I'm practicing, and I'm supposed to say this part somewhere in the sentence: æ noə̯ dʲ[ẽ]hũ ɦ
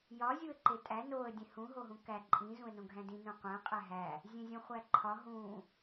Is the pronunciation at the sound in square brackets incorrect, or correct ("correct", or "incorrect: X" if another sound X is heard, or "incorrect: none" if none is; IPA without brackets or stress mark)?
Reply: correct